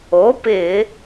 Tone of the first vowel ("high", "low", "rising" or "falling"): rising